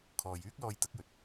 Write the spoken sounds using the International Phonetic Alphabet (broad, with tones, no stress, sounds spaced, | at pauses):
kʰ ɔː˨ j yː˥ k̚ l ɔː˧ j t̪ ɐ˨˥ k̚ j ɵ˨ t̚